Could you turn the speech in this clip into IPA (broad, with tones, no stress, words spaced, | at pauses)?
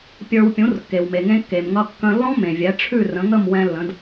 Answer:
pʲə˞˧w pʲũ˩˥rkːe˩wme˩ŋẽ˧ kːe˩mŋʌ˧ kːə̃˧ lːɔ̃˥mẽ˩vʲɛ˩˥ ʈ͡ʂʰʉ˥˩rə̃˩˥ŋə˥˩m wɛ̃˧lːə̃˩˥d